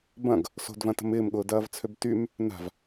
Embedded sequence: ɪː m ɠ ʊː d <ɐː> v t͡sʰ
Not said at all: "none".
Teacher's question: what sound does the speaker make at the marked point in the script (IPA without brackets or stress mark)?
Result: ɐː